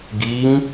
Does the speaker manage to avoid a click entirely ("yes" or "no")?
yes